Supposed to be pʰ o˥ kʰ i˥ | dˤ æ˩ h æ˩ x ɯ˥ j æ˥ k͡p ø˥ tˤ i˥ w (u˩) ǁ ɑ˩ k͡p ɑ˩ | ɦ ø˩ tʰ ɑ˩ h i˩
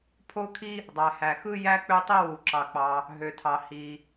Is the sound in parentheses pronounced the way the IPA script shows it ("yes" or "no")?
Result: yes